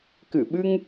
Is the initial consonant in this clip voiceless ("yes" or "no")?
yes